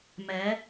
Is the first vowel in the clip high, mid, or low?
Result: mid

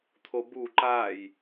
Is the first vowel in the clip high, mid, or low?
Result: mid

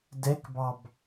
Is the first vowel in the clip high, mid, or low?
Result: mid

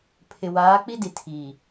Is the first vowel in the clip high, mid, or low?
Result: high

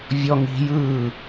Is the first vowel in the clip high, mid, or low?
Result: mid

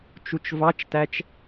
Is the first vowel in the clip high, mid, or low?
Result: high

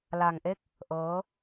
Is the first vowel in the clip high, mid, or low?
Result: low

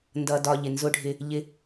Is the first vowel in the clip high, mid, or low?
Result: mid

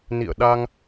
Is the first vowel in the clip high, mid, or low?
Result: high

